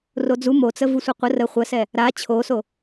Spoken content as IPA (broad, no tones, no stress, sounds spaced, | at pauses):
r o d͡z u m o t͡s ə v u sʷ ə qʷ ə r ə χʷ ə s ɛ | ɾ a t͡ɕʰ o s o